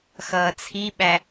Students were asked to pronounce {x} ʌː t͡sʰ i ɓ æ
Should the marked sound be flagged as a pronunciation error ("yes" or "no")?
no